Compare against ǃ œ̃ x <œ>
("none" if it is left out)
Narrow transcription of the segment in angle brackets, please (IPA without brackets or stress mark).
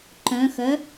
œ